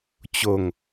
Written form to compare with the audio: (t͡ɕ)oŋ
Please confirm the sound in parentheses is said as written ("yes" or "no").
yes